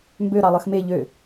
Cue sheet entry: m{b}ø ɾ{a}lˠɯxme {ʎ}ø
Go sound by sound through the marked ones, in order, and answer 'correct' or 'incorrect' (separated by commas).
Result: correct, incorrect, correct